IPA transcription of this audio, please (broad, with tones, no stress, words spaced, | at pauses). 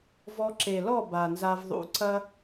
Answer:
vɔ˧ǁe˨lɔ˦˨ ba˨nza˧vðˤṵ˧ǀɐ˦